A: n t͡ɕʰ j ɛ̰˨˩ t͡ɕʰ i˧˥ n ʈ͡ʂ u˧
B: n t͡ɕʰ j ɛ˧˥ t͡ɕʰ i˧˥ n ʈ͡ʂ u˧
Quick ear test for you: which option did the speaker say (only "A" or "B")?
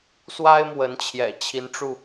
A